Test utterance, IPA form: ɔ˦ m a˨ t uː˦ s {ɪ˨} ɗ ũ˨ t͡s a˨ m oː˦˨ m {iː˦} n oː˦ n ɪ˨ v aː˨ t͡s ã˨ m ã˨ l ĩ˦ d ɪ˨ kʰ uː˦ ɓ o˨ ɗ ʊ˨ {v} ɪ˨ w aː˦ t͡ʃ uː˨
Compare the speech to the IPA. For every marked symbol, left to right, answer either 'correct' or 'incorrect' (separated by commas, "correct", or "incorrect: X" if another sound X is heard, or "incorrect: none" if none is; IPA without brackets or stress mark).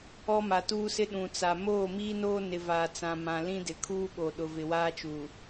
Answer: incorrect: ɪ˦, correct, correct